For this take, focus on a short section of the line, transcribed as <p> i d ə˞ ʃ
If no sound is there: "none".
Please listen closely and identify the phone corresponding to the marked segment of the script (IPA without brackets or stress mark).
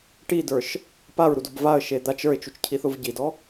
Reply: ʈ